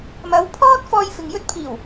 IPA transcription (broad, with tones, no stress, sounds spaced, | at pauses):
m ɐ˨˥ w pʰ ɔː˥ t̚ f ɔː˧ j f ɪ˨ ŋ j ɵ˥ t̚ pʰ iː˨˩ w